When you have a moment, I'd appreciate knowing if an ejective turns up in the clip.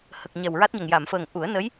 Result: no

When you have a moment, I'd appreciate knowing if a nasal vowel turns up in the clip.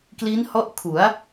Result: no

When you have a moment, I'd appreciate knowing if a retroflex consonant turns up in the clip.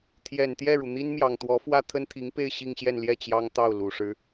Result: yes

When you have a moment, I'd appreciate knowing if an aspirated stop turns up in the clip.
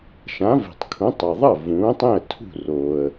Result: yes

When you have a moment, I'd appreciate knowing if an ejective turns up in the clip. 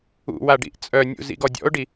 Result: yes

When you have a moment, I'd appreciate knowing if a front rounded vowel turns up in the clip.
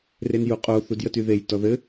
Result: yes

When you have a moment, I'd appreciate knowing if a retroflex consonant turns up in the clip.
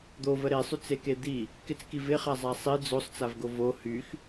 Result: no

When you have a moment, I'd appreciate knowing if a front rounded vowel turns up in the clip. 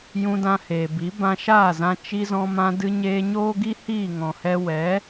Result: no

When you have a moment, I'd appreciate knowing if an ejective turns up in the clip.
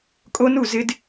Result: yes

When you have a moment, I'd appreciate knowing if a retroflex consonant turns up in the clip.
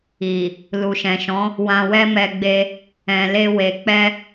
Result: no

